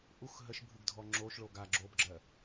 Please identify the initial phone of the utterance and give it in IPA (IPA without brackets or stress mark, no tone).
ʔ